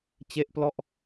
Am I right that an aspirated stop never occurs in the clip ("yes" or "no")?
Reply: yes